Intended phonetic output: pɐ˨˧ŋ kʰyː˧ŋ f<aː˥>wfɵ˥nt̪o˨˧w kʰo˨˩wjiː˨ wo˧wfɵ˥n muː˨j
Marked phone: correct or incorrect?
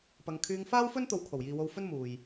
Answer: correct